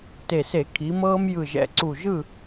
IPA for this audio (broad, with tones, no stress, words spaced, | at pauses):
te˨˩se˧˩˧ kʰi˩˧mɤː˧m jɯ˨˩ʒɛ̰˨˩ǀu˨˩ ʒɯ˥˨